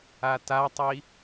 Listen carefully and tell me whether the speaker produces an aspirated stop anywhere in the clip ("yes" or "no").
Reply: no